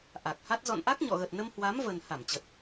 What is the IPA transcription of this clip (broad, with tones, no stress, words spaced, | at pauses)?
ʔa˨˩k̚ha˦˥t̚ zɔ̰˧˨nʔa˦˥k̚ɲɔ̰˧˨ɣə˨˩t̚ nə˧mhwa˨˦mvə˨˩n ha˧˩mt͡ɕə˨˩t̚